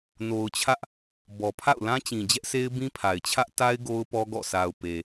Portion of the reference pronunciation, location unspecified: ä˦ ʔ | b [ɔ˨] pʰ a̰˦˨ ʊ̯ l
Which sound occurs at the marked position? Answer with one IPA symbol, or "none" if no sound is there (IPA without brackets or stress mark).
ɔ˨